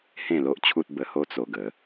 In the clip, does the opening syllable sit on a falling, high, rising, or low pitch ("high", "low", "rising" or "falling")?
falling